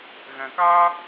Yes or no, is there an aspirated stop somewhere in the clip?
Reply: no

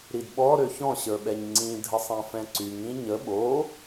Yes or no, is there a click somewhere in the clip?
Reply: yes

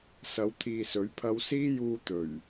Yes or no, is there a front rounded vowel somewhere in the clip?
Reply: no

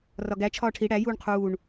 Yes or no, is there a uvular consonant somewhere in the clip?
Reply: yes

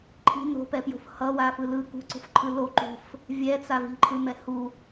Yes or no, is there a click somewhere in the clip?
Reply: yes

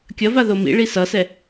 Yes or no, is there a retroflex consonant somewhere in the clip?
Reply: yes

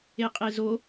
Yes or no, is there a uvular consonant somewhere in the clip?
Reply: yes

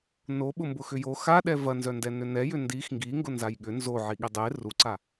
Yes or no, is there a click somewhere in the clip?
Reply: yes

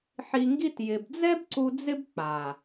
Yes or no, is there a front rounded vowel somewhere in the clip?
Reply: no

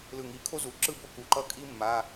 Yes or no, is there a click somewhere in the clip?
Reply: yes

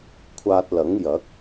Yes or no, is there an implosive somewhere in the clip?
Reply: no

